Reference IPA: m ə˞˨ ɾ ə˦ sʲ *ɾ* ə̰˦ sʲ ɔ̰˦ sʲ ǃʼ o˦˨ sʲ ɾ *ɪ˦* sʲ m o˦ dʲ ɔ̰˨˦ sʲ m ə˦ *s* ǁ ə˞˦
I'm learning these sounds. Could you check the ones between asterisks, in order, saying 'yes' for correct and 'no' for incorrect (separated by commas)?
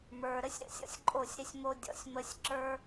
yes, yes, no